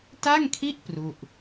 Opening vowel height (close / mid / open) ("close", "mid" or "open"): open